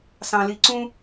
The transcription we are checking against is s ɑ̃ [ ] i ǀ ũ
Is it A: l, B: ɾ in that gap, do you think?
A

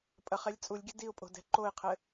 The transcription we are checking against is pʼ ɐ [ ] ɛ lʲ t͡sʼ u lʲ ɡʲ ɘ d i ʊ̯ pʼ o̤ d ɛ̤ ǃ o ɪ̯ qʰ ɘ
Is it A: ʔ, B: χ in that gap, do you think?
B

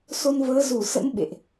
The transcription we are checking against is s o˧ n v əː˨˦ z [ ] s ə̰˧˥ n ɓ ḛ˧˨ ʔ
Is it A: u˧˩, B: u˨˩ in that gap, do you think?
A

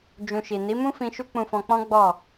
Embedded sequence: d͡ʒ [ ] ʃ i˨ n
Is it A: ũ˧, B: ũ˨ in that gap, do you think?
A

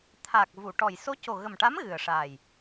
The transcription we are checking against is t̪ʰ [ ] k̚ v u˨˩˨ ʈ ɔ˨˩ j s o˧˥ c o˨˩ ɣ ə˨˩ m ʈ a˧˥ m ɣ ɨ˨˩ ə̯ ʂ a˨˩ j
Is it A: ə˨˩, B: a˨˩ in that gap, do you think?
B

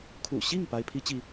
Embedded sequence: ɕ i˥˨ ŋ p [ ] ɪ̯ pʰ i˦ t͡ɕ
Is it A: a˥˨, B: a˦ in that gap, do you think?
B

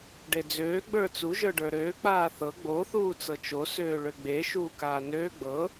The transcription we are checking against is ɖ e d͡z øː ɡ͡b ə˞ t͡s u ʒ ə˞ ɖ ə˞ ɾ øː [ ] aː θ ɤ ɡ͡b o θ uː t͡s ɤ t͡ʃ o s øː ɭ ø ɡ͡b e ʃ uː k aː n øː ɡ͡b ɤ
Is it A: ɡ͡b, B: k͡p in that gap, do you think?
B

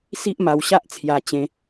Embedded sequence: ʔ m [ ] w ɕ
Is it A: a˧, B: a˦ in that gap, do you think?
A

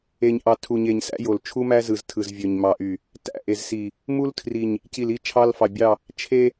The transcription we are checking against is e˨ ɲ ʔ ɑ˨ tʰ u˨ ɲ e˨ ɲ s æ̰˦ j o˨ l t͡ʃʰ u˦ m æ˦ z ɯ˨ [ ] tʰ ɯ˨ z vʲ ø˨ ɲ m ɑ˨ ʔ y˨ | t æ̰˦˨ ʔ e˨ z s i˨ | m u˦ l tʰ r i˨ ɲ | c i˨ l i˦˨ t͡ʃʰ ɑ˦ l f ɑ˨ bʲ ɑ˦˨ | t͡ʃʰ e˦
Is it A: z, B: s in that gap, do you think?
A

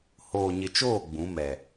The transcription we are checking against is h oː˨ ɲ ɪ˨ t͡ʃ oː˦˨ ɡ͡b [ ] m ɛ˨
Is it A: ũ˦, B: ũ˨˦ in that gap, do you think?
B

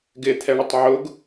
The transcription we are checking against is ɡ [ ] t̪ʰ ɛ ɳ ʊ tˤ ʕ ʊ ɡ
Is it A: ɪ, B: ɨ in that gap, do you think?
A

